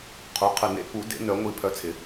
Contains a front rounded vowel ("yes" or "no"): yes